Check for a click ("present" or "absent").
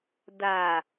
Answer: absent